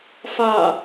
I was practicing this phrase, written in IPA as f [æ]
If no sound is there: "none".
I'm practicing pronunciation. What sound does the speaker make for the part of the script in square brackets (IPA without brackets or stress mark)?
a